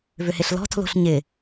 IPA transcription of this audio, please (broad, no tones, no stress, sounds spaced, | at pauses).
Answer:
v ʏ h ɪ ɬ l ɔ̤ tʰ l o̤ ɬ ɲ ɪ